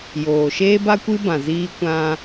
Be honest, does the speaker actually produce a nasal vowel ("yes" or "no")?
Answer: yes